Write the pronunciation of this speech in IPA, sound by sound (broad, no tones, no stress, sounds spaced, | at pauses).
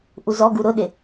ʔ u z ɔ ɡ u ɾ ʊ ɗ ɪ